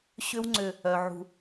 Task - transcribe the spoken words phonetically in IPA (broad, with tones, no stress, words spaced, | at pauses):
ɕʏ˦w ŋ͡ǀʏ˦˨ | œ˨ ʕṳ˨